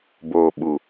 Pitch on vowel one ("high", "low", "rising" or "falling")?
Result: low